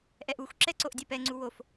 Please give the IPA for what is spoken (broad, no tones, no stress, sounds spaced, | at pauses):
ʔ ɛ ʔ u xʷ ǁ ɛ ǀ o ʔ dʲ ɛ p ɛ ŋ͡ǀ u w o f